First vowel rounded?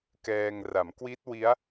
no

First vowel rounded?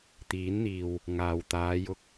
no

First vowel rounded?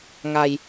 no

